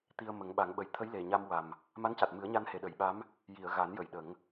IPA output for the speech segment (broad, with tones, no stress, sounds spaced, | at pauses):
t̪ i˧ ə̯ m ə˨˩˦ ŋ ɓ a˨˩˦ ŋ ɓ ə˨˩ j t̪ʰ ə˧˥ j l e˨˩ ɲ a˧ m w a˨˩ m | m a˧˥ n c a˨˩ t̚ m ɨ˨˩˦ ə̯ ɲ a˧ n h e˨˩ ɗ ə˨˩˦ j ɓ a˧˥ m | j i˨˩˨ ə̯ ɣ a˨˩˦ n j ə˨˩˨ j ɗ ə˨˩˦ ŋ